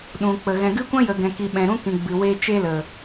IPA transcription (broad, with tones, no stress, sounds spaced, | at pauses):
ɗ ũ˨ k͡p ə˨ ɣ ɛ̃˨ ɡ ɨ˦ kʷ ã˦ j ə˨ ɡ ɛ̃˨ k i˨ ɓ ɛ̃˨ ɾ ũ˦ k ĩ˨ ɡ͡b ɨ˨ w e˦ t͡ʃ e˦ l ə˨